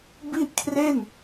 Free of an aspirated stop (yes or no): no